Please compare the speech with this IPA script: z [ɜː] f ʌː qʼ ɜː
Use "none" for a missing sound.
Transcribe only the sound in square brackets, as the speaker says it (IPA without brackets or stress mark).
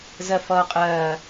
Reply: ɜ